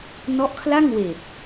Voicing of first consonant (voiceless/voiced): voiced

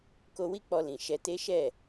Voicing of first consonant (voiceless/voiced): voiceless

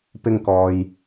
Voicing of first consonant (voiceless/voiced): voiceless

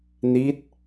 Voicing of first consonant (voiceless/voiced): voiced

